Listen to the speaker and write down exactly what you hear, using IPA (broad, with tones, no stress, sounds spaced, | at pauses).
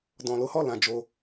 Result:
d ɔ̃˧ l o˦ h ɔ˦˨ l ã˧ d͡ʒ o˧